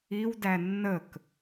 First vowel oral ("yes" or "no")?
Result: yes